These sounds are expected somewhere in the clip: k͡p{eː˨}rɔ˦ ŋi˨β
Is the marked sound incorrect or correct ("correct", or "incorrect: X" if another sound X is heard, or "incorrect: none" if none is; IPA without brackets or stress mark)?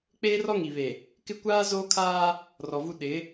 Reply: incorrect: eː˦